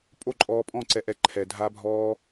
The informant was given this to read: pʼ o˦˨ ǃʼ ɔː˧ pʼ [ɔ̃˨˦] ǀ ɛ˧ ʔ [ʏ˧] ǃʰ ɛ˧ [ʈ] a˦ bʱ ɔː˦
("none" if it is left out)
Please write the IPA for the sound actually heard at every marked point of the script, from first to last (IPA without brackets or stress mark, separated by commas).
ɔ̃˦˨, ɛ˧, dʱ